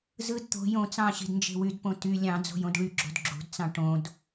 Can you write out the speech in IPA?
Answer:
z ɯ d t̪ o̤ j õ t͡s ɑ̃ ɕ i̤ d n d͡ʒ e̤ w y d p õ t y lʲ ɑ̃ d͡z o̤ j õ d ɭ y ɡ͡ǁ o̤ d ɡ͡ǁ ṳ d t͡s ɑ̃ ʈ õ d

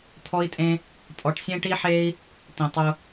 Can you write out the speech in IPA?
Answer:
t̪ʰ ɔ˦ i̯ tʼ ẽ˦ | tʼ ɔ˧ ʈ sʲ ẽ˦ ʈ i˦ ħ e˦ i̯ | t̪ ĩ˧ tˤ ʊ˦

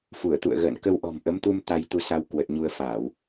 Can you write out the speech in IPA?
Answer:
f u˧˩ ə̯ t̪ ṵ˧˨ ə̯ ɣ ə̰ː˧˨ n k ə˧ w ʔ ɔ̤˨˩ m ʔ ə˨˦ m t̪ u˧ m t̪ a˧ j t̪ u˧ s a˧ w k w ə˨˩ t̚ ɲ u˧ ə̯ f aː˧˩˨ w

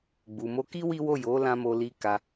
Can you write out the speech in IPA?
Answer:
ɡ͡b u˨ m o˧ k i˦ w i˦ w o˦˨ j o˨˦ l ã˧ m o˧ l i˧ k a˧

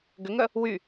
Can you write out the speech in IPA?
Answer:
ɡ ʏ ŋ œ | w y

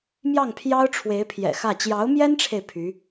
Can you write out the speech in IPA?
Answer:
m j ɑ˥˩ ŋ pʰ j ɑ˥ ʊ̯ ʈ͡ʂʰ w e˧˥ ɪ̯ pʰ j ɛ̰˨˩ x ä˥˩ t͡ɕ j ɑ˧˥ ʊ̯ m j ɛ˥ n ʈ͡ʂʰ e˨ ɪ̯ pʰ y˧˥

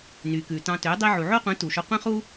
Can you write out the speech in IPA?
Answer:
n y˨ k ʉ˨ t ɑ̃˧ t ø˨˦ dˤ i˧ ʕ u˨ ʕ o˦ qʷ ĩ˨˦ t u˨ ʃ ɵ˧ qʷ ĩ˦ χ u˦

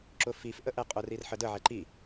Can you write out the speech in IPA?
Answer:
ǁ ʊ f i f ʔ ə ʔ ɛ qʼ ʊ r i r ħ ə d ə ʕ ɛ ǃ i

